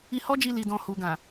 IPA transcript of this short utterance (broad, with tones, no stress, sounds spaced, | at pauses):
i˧ h ɔ˦ d͡ʒ i˧ l i˧ d ɔ̃˧ h u˨ ɡ ã˨